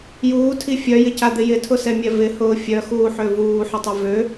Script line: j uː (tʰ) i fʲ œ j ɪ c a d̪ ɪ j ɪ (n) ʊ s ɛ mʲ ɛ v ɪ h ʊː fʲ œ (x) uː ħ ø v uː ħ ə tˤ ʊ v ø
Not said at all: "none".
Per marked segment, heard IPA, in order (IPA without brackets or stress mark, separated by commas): tʰ, tʰ, x